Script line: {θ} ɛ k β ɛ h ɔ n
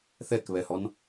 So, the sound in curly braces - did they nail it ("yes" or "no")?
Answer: yes